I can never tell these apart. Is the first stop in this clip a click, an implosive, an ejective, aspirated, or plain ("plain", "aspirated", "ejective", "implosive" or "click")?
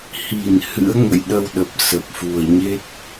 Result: implosive